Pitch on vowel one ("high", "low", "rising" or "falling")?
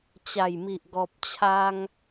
low